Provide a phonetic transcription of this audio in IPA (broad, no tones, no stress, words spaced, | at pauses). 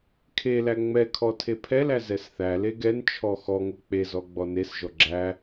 kʰelæ ŋ͡mɛkʰɔ tʰepʰɛlæ zɛsθæle ɡɛn t͡ʃʰɔxɔŋo k͡pezɔ ɡ͡bɔnesʒɔ ɡ͡ǁæ